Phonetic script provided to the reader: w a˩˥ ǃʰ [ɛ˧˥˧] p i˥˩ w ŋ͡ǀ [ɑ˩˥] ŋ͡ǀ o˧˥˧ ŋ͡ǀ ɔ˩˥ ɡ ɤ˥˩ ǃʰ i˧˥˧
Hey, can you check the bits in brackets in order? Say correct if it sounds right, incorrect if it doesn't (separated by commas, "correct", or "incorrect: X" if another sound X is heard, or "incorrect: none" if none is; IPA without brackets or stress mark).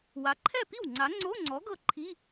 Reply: incorrect: ɛ˥˩, incorrect: a˩˥